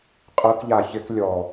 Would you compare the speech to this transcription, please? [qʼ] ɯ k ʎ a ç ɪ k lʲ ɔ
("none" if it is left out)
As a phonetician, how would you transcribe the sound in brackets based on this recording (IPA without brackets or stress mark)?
qʼ